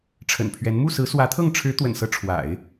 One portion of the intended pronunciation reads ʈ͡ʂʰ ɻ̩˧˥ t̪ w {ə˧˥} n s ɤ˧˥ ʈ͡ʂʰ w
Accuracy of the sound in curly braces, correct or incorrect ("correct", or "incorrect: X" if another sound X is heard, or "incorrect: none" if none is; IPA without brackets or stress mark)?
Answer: incorrect: ə̰˨˩